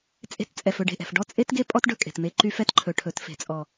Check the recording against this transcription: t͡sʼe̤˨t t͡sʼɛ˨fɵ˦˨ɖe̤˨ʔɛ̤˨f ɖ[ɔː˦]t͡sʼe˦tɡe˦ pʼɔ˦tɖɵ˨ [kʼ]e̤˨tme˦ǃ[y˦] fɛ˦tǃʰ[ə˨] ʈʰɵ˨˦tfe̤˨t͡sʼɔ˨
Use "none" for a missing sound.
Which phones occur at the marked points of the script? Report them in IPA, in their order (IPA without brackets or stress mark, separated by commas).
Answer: ɔ˦, kʼ, y˦, ɵ˨